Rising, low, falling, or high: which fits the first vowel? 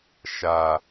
low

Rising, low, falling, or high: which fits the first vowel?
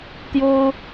high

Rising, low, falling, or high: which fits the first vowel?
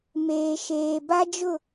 low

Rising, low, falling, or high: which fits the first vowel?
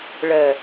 low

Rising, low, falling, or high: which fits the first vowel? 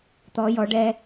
rising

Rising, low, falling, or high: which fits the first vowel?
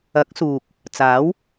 rising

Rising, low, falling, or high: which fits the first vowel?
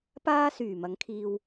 high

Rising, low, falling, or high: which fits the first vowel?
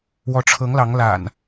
rising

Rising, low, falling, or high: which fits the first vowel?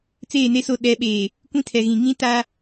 falling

